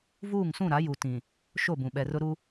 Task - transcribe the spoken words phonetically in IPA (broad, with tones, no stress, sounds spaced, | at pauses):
v uː˦˨ ŋ s ũ˦˨ ɾ a˨˦ j u˨ t ĩ˨ | ʃ o˦˨ b ũ˨ ɓ ɛ˨ r ʊ˦ ɾ u˦